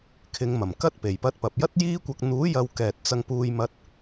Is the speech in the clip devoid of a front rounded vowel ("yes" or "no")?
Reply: yes